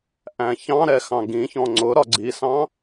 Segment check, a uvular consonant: absent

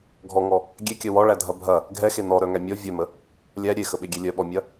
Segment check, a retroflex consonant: present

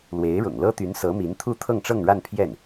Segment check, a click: absent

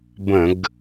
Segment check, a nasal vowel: present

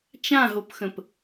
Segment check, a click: absent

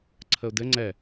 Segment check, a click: present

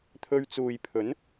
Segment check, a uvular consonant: absent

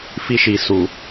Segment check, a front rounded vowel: absent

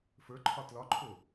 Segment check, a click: present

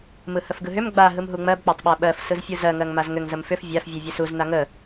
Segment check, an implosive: present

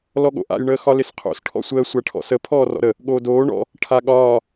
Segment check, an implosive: present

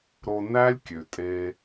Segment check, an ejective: present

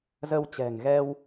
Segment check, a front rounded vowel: absent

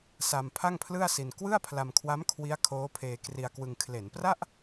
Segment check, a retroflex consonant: absent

